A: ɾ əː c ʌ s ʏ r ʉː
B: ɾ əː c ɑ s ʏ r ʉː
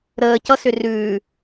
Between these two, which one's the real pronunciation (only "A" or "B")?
A